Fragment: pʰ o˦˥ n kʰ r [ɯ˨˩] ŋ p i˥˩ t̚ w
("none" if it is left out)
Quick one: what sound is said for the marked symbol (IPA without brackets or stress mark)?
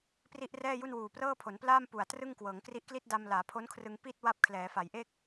ɯ˧